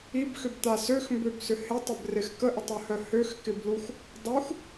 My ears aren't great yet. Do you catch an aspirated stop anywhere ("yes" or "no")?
no